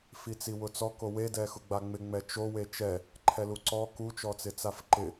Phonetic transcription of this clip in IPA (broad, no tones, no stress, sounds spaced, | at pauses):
f i t͡s i w ʊ t͡s ɔ k o w e d ɛ x ʊ ɡ͡b a ŋ͡m ɪ ŋ͡m ɛ t͡ʃ o w e t͡ʃ ɛ | ǃʰ ɛ l u ǀ ɔ k u t͡ʃ ɔ t͡s ɪ t͡s a f ǃ ɪ